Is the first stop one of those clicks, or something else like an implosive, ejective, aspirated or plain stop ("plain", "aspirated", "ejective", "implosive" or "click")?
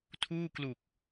aspirated